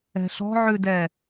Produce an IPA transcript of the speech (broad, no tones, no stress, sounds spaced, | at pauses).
ɛ̤ ɬ ɔ̤ ʕ ʉ d ɛ